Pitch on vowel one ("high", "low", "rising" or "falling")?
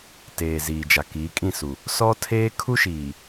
low